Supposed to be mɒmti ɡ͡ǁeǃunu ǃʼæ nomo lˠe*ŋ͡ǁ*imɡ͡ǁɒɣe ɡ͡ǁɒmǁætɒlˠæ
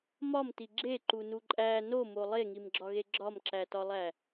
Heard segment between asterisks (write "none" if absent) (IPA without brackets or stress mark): ŋ